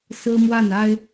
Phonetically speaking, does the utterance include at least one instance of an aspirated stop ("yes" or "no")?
no